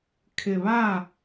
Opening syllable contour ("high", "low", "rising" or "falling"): low